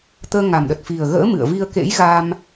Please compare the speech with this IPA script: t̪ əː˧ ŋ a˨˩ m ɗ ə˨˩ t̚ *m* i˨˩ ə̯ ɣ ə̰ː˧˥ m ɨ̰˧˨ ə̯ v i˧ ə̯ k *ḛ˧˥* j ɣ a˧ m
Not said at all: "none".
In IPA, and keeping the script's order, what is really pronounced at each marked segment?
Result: f, ḛ˧˥

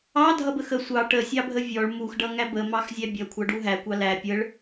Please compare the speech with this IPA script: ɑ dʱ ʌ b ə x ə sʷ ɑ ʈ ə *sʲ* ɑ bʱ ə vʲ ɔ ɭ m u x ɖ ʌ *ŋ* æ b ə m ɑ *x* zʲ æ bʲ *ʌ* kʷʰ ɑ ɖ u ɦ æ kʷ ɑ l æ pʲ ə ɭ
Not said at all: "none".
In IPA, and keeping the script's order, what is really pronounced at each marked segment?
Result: sʲ, ŋ, x, ʌ

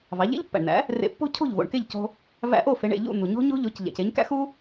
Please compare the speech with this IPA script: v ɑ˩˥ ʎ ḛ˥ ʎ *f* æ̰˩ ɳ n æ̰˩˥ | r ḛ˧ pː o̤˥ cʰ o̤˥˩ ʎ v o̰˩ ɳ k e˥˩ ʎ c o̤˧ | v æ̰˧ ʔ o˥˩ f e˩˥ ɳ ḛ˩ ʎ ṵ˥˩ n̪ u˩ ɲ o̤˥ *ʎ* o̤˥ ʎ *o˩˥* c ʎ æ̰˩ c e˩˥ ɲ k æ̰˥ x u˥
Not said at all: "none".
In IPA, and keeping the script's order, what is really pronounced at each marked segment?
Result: pː, ɲ, o˩˥

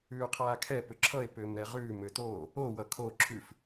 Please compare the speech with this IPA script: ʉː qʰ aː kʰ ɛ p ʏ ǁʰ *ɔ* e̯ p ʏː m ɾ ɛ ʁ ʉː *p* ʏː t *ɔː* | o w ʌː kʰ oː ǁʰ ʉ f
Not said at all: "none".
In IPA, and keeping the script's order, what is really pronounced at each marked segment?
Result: ʌ, m, oː

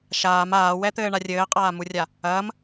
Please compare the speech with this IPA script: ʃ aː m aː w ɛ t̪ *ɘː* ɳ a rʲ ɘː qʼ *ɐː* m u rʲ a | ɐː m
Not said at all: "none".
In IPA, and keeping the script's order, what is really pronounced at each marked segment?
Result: ɘː, aː

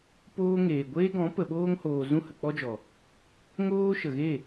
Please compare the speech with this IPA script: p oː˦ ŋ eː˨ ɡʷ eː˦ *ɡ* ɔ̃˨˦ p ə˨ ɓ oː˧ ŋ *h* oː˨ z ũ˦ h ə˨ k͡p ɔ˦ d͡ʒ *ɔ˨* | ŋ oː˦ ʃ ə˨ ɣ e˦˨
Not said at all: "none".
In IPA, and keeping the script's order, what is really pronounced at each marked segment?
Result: ɡ, h, ɔ˨

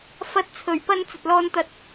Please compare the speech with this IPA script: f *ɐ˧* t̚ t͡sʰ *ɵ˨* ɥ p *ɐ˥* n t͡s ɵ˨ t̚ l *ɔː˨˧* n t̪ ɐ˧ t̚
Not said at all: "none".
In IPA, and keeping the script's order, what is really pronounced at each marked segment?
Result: ɐ˧, ɵ˨˩, ɐ˧, ɔː˧

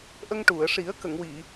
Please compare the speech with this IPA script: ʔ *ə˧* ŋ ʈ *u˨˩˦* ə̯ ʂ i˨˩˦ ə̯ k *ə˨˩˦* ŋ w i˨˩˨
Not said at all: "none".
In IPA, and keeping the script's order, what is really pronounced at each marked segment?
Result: ə˧, u˨˩˨, ə˨˩˨

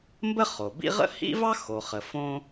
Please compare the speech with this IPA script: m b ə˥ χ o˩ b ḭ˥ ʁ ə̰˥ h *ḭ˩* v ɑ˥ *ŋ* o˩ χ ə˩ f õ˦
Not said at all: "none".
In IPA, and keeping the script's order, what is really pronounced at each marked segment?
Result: ḭ˥, x

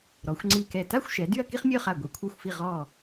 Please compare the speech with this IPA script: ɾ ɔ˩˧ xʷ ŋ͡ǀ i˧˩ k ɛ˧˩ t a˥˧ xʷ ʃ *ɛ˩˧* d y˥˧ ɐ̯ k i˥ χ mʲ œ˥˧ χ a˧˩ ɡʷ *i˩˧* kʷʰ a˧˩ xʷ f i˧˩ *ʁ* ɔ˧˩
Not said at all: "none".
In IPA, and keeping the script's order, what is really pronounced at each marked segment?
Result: ɛ˩˧, i˩˧, ʁ

